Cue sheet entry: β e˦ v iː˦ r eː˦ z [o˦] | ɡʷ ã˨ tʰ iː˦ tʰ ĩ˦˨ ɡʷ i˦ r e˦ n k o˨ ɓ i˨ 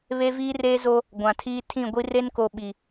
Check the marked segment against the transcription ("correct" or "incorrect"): correct